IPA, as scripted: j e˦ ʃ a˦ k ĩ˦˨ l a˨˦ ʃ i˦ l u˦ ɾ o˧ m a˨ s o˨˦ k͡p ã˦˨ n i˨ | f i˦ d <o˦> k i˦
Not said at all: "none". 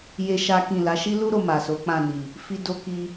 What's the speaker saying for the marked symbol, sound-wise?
o˦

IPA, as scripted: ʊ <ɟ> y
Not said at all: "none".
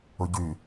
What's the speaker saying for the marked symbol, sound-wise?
ɟ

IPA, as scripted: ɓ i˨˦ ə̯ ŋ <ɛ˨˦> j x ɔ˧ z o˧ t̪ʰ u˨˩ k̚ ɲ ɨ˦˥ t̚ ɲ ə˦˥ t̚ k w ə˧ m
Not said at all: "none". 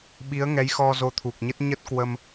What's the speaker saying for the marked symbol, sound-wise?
ɛ˨˦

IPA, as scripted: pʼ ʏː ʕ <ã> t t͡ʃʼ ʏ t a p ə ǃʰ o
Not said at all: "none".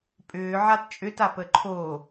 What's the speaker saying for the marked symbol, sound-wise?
a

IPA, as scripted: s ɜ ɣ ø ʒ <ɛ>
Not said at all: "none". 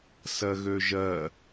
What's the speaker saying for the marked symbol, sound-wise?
ɜ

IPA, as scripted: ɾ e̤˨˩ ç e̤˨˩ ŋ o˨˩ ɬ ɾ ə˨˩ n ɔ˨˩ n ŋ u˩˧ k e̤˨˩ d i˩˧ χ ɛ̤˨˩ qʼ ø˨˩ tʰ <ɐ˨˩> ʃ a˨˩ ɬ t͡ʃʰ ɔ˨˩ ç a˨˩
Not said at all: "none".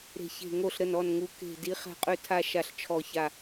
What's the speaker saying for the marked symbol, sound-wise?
a˨˩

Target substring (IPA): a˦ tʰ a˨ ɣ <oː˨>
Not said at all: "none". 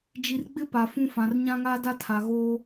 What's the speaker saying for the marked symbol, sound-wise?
oː˦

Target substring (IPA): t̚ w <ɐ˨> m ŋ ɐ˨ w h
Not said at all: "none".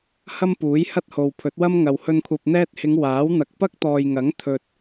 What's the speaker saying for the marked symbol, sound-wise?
ɐ˥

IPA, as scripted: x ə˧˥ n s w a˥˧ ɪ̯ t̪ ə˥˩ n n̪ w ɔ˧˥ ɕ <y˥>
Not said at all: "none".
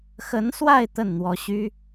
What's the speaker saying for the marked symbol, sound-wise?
y˥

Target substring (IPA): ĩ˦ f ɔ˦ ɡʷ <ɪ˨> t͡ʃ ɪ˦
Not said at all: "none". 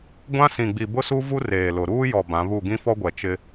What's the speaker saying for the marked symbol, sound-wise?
ɛ˨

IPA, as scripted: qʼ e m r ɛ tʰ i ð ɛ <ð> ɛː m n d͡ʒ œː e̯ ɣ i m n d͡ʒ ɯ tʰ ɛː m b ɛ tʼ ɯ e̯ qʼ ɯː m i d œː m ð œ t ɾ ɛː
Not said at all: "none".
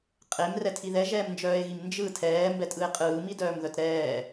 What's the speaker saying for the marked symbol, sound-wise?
ʒ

